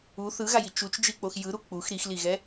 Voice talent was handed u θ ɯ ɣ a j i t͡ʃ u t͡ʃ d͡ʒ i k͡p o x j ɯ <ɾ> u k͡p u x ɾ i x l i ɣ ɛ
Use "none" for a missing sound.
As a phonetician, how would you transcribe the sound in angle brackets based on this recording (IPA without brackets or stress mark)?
ɾ